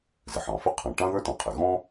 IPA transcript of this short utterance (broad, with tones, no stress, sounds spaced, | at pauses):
z ɪ˩ ħ ɑ̃˩ f ɪ˥ qʰ ɑ̃˩ ʈ ɑ̃˥ ð ə˞˥ t ɑ̃˩ qʰ ɪ˩ ɣ ɔ̃˥